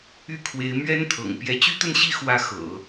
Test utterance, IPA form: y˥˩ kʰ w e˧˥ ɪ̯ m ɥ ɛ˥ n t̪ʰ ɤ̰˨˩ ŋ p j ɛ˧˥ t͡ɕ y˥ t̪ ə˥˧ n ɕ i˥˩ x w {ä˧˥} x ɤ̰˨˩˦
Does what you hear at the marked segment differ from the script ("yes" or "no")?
no